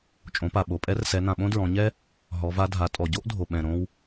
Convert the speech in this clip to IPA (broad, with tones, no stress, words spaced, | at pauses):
t͡ʃʼõ˩˧pa˩ ɓo˩˧pʼɛ˧˥r sɛ˩˧nã˩ɓõ˥ dɹɔ̃˩˧ɲɛ˥ | ɦɔ˩˧va˧˥dʱa˩˧ tʼɔ˩ɟo˥ʔdʱo˩ ɓɛ̃˩ ɾõ˧w